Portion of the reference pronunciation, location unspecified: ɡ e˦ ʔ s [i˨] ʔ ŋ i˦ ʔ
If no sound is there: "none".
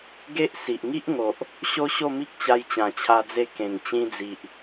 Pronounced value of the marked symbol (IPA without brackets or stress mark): i˨